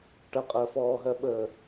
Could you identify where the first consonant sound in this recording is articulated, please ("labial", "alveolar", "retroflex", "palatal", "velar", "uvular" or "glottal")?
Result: retroflex